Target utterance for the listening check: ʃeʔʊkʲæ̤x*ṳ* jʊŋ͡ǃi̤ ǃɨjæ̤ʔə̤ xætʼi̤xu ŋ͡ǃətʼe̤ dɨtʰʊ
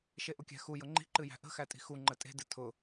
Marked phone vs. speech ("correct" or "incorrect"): incorrect